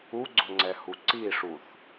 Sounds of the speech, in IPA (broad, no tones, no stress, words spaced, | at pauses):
uɡ͡ǀʊŋ͡ǀɛhu ǀiʂuθ